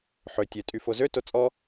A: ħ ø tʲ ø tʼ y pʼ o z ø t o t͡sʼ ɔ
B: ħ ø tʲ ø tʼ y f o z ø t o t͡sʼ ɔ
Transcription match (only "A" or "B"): B